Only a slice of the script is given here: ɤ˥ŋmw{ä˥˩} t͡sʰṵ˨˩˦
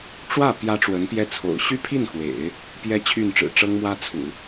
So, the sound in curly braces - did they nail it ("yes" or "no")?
no